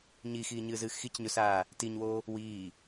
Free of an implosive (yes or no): yes